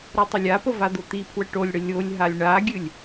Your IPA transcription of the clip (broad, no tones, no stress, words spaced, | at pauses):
ɾotˤəlʲapə vad̪ot̪ipʰwə ʈolʲɽə lʲolʲɦalʲ ɳaɡʲɨlʲ